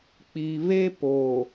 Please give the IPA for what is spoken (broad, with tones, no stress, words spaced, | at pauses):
k͡pi˨βe˦po˨